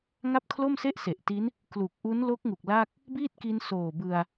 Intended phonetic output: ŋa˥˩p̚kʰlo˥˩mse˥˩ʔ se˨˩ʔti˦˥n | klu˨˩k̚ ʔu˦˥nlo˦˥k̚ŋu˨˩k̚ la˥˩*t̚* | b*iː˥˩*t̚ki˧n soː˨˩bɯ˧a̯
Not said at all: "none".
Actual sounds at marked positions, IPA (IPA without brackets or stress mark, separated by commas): k̚, iː˥˩